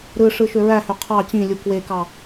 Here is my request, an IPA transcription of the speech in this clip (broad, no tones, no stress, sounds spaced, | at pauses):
ɾ ɯ ʂ ɯ ʃ ø ɹ æ h ø qʰ ɑ t͡ɕ ĩ lʲ u k w e k ɑ